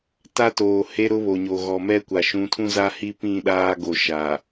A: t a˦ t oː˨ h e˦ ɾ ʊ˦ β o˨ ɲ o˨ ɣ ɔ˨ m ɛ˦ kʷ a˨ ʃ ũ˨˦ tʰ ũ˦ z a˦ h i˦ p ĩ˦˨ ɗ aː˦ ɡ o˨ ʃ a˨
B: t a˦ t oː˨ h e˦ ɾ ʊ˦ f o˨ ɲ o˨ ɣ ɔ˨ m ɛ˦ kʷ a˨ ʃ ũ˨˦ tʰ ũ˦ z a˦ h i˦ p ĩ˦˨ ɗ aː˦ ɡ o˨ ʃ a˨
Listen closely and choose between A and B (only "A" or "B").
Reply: A